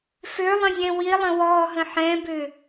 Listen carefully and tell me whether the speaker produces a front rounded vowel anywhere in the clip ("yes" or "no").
yes